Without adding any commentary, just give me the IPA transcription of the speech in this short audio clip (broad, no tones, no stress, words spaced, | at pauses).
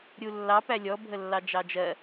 ɾʲulːɑ pælʲɔ bʱəlːɑd͡ʒɑd͡ʒɜ